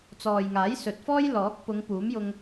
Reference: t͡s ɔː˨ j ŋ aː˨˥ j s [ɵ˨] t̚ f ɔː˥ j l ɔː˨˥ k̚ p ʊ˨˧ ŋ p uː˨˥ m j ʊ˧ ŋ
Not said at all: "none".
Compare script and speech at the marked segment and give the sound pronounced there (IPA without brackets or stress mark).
ɵ˨